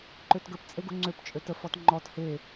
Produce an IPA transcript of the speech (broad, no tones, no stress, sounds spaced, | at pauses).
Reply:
ǃ ø t ɡ ə p t͡sʼ e ɡ u ŋ͡ǀ ø p t͡ʃʼ ø t ə f ɔ t ŋ͡ǃ ɔ t h e